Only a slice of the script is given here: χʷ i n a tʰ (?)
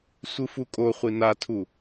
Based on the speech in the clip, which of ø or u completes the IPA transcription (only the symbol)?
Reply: u